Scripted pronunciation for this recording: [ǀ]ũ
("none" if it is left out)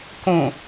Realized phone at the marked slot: k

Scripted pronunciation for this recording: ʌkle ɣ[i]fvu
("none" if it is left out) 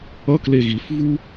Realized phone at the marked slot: i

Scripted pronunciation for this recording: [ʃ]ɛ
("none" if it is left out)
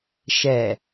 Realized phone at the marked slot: ʃ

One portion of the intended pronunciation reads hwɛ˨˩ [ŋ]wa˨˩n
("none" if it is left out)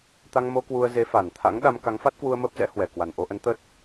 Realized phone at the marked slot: k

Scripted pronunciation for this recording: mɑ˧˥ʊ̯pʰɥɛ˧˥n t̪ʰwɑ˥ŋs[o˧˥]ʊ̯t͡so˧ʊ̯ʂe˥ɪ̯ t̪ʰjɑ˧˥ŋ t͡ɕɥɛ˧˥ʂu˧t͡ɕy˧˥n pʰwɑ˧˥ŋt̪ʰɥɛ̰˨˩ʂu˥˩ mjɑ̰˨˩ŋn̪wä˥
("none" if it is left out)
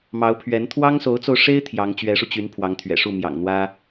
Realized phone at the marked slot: o˧˥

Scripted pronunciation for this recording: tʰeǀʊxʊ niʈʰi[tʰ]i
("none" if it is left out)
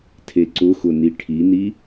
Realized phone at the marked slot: n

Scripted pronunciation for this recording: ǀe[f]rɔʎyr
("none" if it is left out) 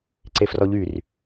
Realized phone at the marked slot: f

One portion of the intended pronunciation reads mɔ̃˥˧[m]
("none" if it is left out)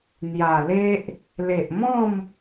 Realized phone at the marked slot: m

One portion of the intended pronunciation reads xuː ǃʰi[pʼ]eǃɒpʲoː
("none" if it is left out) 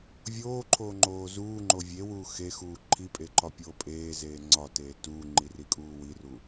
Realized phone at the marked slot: pʼ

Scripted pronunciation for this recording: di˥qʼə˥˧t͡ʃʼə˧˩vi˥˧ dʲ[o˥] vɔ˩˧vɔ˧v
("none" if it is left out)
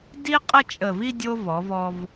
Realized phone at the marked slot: o˥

